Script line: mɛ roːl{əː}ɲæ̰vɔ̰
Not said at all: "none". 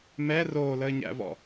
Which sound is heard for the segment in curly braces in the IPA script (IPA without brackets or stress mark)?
əː